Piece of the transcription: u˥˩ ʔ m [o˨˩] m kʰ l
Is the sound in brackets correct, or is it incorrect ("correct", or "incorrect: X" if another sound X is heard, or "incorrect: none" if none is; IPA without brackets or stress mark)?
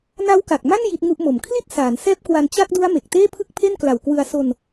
correct